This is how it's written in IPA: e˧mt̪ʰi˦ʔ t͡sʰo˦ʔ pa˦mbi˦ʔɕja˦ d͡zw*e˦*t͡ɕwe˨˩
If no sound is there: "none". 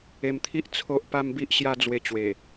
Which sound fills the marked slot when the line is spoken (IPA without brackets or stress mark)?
e˧